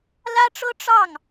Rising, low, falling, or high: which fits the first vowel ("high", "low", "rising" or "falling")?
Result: high